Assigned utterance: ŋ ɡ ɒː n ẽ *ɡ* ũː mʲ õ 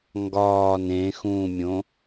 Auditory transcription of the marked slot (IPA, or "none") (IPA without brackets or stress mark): x